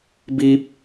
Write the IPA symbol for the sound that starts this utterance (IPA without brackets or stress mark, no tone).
b